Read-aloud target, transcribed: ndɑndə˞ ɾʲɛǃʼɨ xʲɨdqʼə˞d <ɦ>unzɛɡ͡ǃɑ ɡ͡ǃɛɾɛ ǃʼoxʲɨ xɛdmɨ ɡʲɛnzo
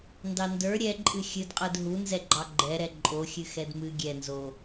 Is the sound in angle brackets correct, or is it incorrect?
correct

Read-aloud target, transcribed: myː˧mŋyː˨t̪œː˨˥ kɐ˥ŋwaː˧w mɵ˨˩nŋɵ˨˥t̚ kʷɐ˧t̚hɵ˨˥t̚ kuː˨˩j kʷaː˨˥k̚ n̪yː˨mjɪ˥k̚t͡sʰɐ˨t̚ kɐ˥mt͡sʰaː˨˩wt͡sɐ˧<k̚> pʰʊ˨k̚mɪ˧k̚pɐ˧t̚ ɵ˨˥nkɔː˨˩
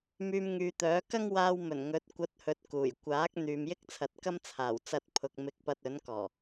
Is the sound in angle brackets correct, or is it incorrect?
incorrect: t̚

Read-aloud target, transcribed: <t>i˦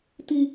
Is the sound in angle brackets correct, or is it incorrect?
correct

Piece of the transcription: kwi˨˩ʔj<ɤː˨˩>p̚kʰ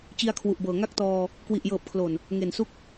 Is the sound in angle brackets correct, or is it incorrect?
correct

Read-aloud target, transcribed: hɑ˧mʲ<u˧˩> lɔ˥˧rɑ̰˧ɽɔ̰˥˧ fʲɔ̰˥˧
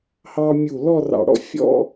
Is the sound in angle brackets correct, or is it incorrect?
correct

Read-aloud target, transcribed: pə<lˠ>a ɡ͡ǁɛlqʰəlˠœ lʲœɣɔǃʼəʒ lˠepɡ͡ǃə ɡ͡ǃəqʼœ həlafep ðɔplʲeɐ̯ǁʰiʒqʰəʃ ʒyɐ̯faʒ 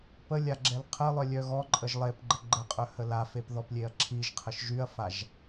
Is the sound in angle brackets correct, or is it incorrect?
incorrect: lʲ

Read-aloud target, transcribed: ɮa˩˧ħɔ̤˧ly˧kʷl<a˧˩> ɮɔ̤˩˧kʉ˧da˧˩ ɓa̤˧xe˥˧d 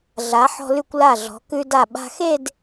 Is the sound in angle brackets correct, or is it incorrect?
correct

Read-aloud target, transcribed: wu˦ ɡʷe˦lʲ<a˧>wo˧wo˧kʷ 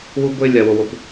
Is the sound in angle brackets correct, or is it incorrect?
correct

